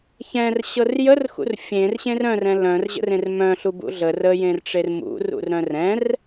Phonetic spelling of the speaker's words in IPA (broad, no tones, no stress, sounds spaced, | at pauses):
ç ɛ̃ r ɕ ɤ r j ə r x ṵ r fʲ ẽ r ɕ ẽ r œ̃ r ɛ̃ l œ̃ r ʑ ə̰ r ẽ r m œ̃ ɬ u b ṵ ɮ ə r ə j ẽ r ʈ͡ʂ e r m ṵ r ṵ r ɾ œ̃ r ɛ̃ r